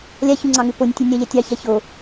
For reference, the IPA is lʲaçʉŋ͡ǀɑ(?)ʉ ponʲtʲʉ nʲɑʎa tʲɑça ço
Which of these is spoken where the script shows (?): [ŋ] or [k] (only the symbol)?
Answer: ŋ